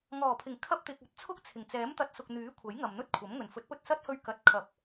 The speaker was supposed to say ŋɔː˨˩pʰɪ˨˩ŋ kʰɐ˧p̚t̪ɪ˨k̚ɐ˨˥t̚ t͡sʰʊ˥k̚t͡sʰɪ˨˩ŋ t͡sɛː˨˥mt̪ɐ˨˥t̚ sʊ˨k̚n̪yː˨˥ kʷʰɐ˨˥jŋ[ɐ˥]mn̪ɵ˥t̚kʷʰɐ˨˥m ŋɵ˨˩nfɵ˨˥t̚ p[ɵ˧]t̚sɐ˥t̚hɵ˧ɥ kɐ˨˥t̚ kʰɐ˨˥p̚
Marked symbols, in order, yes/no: no, yes

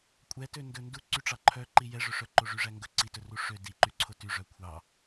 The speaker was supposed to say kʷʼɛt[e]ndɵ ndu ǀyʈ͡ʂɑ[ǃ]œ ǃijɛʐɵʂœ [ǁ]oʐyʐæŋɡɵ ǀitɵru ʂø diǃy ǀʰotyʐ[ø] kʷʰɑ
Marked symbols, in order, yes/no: no, no, no, no

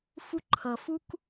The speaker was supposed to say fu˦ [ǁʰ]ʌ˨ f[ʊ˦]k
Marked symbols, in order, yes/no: no, no

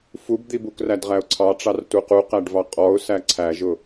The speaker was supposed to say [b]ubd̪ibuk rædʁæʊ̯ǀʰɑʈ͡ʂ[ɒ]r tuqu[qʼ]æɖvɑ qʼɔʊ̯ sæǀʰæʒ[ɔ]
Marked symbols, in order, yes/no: no, no, no, no

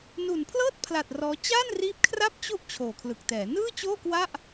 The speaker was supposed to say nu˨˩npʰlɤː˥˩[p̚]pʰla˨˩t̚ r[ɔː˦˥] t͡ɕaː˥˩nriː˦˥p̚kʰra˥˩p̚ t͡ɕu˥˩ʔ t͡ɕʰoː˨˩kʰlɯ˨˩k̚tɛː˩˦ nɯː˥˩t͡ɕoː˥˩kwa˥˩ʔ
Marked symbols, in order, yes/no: no, yes

